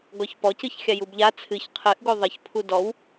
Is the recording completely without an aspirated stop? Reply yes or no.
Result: no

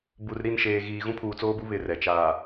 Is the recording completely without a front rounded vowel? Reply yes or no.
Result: yes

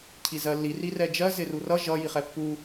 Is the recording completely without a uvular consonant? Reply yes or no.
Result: no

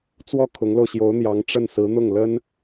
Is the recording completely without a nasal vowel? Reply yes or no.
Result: yes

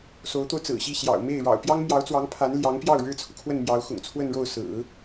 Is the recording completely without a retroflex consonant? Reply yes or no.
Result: no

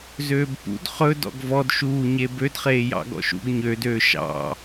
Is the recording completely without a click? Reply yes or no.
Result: yes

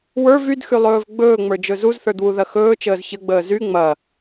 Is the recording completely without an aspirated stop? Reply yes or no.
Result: yes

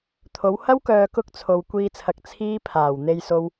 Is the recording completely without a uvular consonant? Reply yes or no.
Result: yes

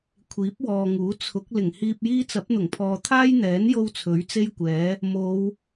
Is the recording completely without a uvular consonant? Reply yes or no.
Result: yes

